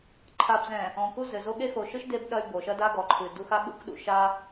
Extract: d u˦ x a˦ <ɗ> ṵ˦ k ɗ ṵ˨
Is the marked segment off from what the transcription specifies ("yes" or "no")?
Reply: yes